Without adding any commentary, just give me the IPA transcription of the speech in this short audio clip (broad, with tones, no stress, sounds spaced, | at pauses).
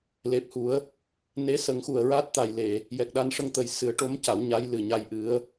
l e˨˩ p̚ h u˨˩˦ ə̯ | n e˧˥ s ə˨˩˦ ŋ x u˨˩ ə̯ ɹ a˦˥ t̚ t̪ a˨˩ j l e˨˩˨ | j ɛ˨˩ k̚ ɗ a˧ n ʂ ə˧ ŋ t̪ ə˨˩˦ j s ɨ˨˩˦ ə̯ ʈ o˧˥ m c a˨˩˦ w ɲ a˧˥ j l ɨ˨˩ ɲ a˧ j ʔ ɨ˧˥ ə̯